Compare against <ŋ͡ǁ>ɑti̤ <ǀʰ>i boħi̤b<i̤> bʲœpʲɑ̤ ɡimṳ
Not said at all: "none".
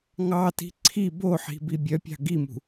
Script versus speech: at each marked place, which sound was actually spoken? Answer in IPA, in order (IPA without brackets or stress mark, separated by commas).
ŋ, ǀʰ, i